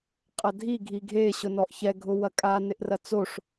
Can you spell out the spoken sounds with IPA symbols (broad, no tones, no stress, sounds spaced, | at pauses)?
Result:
qʼ ɐ dʱ i ɡʱ i ɡʱ e ɕ ʊ n ɔ ʔ ç ɛ ɡʱ ʊ w ɐ kʼ a n ɪ ʔ r ɐ t͡s o ʂ